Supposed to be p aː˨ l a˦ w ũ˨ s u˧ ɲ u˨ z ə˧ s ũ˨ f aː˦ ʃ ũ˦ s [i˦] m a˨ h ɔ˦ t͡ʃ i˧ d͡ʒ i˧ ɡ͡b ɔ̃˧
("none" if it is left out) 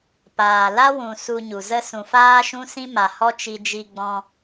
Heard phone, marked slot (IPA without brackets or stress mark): ĩ˦